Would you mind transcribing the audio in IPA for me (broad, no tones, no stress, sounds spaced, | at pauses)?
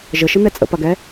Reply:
ʒ ə ʃ ə n̪ ɛ t͡sʼ ə̰ p ɐ ɡ ɛ